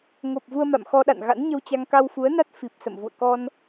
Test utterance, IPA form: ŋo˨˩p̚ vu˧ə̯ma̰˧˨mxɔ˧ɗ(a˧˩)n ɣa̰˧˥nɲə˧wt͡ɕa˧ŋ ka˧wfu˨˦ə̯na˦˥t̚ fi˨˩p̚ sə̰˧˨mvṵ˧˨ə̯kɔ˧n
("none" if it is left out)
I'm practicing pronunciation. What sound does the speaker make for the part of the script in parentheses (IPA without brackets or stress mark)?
a̰˧˨